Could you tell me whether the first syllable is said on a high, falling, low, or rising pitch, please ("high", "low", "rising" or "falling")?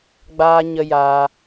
high